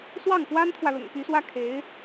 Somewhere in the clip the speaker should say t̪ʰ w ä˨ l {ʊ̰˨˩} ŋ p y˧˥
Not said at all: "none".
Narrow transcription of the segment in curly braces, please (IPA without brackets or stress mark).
ʊ̰˨˩